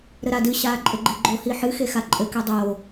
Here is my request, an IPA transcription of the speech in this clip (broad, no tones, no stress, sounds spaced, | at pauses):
ɾ ɘ ɾ a d ɨ ɕ aː ǃʼ ɘ ɡ͡ǃ e ɡ͡ǃ o h i ħ ɨ x e x a ǃʼ ɘ k e dˤ oː